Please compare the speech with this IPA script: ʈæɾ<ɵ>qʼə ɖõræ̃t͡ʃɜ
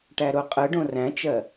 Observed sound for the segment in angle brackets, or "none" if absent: o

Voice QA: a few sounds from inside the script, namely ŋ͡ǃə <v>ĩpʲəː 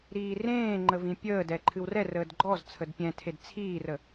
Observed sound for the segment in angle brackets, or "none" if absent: v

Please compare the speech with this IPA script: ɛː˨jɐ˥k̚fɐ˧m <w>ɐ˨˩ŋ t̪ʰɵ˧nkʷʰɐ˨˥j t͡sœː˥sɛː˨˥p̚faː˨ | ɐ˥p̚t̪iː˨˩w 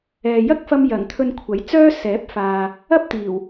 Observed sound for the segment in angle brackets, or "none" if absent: j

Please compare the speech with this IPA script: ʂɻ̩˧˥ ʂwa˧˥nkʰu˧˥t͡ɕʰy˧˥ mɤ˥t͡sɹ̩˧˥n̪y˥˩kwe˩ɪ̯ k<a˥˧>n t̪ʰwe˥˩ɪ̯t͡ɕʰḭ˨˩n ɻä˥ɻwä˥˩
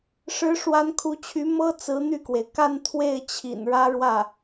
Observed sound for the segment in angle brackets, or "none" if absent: a˥˧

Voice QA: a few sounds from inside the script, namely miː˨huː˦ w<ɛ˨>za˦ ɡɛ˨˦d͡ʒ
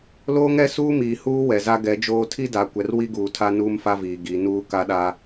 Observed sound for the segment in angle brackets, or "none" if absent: ɛ˨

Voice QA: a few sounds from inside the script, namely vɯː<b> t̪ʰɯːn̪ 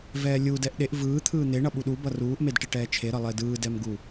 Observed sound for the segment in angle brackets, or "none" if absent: none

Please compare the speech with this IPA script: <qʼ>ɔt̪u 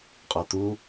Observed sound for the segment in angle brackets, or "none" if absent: qʼ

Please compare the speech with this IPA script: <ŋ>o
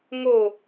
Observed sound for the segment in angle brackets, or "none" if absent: ŋ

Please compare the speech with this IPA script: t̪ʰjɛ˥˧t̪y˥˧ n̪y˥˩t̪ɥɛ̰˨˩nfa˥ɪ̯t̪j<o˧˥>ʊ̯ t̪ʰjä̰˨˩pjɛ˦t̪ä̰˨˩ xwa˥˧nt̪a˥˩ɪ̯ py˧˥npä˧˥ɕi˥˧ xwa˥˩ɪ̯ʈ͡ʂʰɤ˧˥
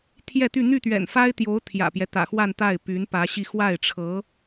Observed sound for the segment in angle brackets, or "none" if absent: o˧˥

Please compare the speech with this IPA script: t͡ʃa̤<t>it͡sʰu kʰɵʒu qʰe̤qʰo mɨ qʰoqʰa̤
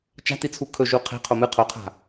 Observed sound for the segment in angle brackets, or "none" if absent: t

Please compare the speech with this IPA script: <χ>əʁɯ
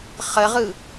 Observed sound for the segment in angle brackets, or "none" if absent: χ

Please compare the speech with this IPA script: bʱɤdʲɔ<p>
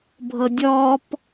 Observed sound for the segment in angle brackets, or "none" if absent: p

